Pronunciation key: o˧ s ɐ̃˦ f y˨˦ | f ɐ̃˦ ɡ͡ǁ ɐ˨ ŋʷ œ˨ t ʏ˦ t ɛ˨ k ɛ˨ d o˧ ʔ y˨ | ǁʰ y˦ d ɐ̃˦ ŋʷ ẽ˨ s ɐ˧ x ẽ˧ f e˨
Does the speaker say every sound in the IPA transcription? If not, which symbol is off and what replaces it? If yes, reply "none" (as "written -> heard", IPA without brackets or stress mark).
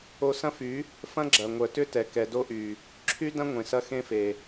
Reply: none